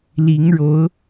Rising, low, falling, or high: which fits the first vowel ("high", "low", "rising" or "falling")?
rising